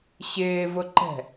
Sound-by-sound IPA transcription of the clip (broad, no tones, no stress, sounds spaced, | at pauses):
ɕ ɪː v ʊ ǃ ɛ̤